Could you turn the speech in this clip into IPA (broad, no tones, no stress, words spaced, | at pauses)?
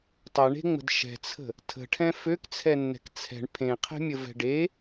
tˤɐɳe̤ŋ͡mə̤d ʃɛ̤t͡sʰə̤ | tʰə̤ʈʰɛ̃ føkt͡sʰɛnːɛ̤k t͡sʰɛ̤ɳ pʰẽqʰɛ̤mʲəvɛ̤ ɖe